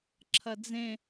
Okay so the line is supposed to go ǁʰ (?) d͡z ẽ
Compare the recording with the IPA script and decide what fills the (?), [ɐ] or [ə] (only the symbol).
ɐ